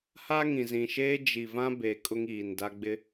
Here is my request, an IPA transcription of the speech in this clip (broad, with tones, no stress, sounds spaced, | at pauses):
h a˦ ŋ ĩ˨ z ĩ˨ ʃ eː˦ d͡ʒ i˨ v ã˦ b e˨ kʼ ʊ˦ ŋ iː˨ n d a˦ ɡ͡b ɪ˦